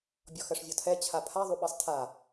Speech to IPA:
bʲ ɔ x ɜ ʂ vʲ ɔ tʰ ɛ t͡ɕʰ a pʰ a ðˤ u ɓ ɜ sˤ tʰ a

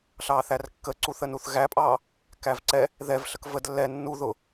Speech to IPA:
ɬ ɑː θ æ r kː ə ǀ u θ ə n u θ ɣ æ pʼ ɑː | k æ v ǀ ɛ | ð ɛ v ɬ ə k v ə d lː ɛ nː u ð ʊ

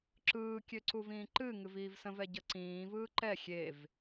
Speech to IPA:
ǁ ɯː kʲ ø ǀ u v ĩː ǃ ɨ ŋ ɨ v iː v s ə̃ v ɛ ɟ ə ǀ ĩː v ɯː ǃ ɛ xʲ e v

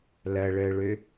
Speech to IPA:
l ɐ ɭ əː ɭ ø

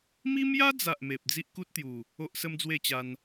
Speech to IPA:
m i˦ m j a˦ d͡z a˨ ʔ m e˨ p̚ d͡z i˦ ʔ k u˦ t̚ t̪ j u˨˩ | o˦ ʔ s ə˦ m d͡z w e˥˧ t͡ɕ a˧ n

